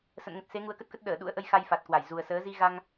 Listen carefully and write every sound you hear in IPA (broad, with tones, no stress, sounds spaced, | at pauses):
s ə̰˧˨ n ŋ ə˨˩ t̚ s e˨˦ ŋ u˨˦ ə̯ k ə˦˥ t̚ k ə˦˥ t̚ ɗ əː˧˩ ɗ ṵ˧˥ ə̯ ʔ ə˧ j x a˧ j f a˨˩ t̚ k w a˧˩ j z u˨˩ ə̯ s əː˨˦ z i˧ ɣ a˧ ŋ